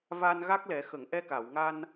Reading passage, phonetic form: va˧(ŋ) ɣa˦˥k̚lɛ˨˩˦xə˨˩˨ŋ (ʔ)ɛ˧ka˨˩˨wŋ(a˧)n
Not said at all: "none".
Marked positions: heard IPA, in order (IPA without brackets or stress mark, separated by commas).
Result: n, ʔ, a˧